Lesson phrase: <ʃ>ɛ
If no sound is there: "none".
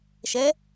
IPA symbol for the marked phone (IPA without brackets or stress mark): ʃ